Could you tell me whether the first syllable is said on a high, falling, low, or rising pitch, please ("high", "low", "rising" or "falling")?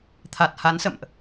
low